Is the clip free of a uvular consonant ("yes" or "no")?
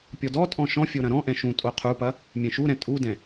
no